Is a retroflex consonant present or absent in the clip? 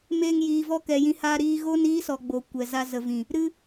absent